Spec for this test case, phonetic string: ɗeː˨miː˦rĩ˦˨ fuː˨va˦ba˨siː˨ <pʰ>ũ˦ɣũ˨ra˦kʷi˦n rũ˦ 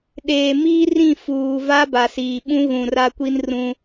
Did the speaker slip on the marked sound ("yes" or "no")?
yes